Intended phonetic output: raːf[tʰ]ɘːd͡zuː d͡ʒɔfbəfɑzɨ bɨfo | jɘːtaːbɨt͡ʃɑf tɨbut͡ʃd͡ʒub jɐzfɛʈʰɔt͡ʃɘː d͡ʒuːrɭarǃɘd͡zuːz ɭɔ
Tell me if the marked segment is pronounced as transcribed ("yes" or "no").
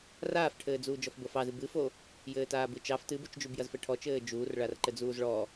no